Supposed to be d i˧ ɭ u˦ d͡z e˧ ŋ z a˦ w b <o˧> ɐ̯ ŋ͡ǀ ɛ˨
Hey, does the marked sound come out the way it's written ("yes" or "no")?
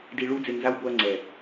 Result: yes